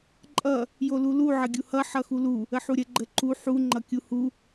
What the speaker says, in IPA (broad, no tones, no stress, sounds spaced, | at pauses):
ǃʼ ʌ | j o l u l u ʕ ə ɡʲ u h ʌ ħ ʌ x u l u | ə ħ u ɾʲ ə ɡ͡ǃ ə ǃ u ħ u ŋ͡ǃ ʌ kʲ u h u